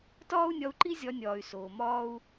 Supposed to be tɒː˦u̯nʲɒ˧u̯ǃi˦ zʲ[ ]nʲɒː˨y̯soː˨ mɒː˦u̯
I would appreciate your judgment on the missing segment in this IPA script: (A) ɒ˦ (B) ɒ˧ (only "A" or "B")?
B